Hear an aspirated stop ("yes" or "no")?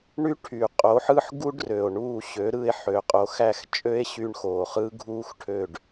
yes